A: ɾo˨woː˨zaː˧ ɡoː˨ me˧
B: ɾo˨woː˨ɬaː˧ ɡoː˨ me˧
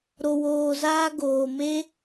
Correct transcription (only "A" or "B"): A